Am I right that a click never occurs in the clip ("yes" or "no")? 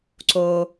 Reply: no